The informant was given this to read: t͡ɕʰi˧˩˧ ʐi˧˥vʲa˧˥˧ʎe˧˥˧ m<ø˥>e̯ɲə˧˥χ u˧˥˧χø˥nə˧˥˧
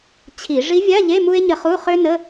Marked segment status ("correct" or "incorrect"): incorrect